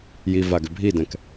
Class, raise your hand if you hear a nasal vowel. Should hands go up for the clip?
yes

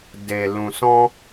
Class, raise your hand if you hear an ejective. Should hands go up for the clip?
no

